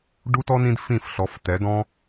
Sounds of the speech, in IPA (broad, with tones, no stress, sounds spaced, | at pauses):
ɖ u˦ t ɔ˦ n ĩ˧ d f ĩ˦˨ f ɬ ɔ˨˦ f t ɛ˨˦ d ɔ̃˦